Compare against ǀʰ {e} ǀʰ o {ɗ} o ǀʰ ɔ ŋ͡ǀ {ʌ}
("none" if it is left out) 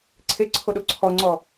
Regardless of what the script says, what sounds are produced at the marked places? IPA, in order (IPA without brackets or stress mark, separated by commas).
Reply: e, ɗ, ɔ